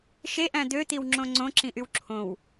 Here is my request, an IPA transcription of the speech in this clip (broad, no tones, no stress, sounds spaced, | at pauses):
ʃ e ʔ æ̃ d̪ ø t̪ i w ŋ͡ǁ õ ŋ͡ǀ õ ǁ ĩ ʔ y w ǁʰ õ w